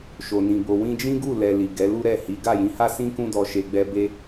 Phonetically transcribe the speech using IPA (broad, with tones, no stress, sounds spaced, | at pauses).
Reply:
ʃ o˨ n ĩ˨ b o˨ w ĩ˧ d͡ʒ ĩ˦ ɡ u˦˨ l ɛ˧ l i˨ ɡ ɛ˨˦ l u˦ ɾ ɛ˦˨ h i˨˦ ɡ a˦˨ j ĩ˨˦ h a˦ s ĩ˦ k ũ˦ d ɔ˧ ʃ e˧ ɡ͡b ɛ˦ b e˦